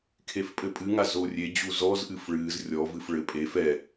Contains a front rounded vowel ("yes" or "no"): no